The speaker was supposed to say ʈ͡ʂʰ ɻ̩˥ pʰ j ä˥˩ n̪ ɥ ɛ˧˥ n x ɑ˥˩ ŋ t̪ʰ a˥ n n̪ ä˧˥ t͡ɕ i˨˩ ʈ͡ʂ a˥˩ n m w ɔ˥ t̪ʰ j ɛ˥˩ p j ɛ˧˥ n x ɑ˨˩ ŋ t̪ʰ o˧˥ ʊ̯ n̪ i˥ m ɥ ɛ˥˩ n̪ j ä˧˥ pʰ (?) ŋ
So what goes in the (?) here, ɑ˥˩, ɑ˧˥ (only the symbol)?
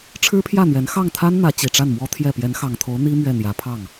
ɑ˥˩